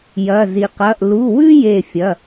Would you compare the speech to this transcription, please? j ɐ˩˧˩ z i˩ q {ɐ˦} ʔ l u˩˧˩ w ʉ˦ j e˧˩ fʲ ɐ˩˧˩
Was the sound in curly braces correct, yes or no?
no